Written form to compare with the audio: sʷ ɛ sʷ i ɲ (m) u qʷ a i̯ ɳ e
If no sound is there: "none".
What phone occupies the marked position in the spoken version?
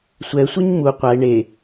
m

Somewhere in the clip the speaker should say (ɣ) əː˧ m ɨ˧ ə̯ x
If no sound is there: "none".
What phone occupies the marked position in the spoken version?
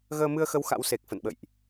ɣ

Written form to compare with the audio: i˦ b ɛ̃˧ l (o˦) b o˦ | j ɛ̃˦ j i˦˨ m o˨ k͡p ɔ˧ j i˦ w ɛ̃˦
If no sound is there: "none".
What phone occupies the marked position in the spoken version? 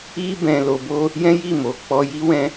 o˧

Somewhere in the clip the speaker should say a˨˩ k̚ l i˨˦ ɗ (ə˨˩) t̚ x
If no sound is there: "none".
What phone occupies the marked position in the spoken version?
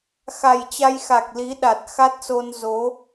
a˨˩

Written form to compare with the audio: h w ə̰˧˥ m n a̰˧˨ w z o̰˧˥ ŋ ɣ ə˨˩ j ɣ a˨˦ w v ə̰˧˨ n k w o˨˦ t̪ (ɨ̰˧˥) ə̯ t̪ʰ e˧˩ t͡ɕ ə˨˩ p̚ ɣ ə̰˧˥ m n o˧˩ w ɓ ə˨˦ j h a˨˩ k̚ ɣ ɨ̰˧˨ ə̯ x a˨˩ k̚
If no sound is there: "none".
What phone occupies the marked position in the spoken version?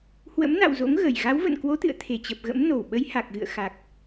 ɨ̰˧˨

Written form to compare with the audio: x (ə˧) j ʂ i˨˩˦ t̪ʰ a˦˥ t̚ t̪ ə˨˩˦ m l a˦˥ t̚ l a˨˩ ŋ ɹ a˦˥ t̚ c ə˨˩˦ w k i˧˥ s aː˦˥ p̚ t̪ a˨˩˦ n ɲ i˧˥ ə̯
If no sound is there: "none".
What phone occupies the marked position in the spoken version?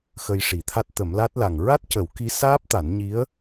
ə˧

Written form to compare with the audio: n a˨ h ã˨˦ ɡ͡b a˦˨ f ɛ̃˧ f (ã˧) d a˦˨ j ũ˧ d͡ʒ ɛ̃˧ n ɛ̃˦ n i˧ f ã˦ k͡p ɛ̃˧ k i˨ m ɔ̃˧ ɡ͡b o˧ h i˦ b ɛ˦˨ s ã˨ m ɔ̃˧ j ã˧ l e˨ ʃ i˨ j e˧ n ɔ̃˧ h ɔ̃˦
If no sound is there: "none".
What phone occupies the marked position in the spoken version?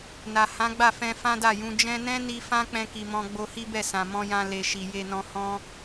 ã˦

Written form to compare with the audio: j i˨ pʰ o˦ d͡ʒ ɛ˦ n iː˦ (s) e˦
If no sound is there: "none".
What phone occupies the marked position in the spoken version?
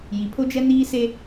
s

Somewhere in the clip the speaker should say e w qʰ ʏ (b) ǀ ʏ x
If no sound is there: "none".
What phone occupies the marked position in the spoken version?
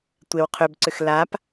b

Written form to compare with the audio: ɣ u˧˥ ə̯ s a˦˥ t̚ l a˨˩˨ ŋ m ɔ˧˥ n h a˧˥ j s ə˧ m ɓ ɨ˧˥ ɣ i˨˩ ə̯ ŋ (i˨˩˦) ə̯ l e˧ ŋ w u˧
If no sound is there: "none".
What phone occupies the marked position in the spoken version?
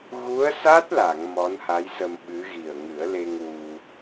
ɨ˨˩˦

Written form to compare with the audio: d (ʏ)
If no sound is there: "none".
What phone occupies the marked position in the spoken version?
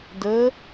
ə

